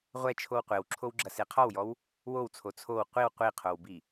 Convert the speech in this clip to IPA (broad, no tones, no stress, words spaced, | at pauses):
ʁʷɛt͡ʃʰow qʷewǁʰowɡ͡ǁɐ seqʰɔwjɔw | wowt͡sʰo t͡sʰow qʷiw qʷiqʰowbi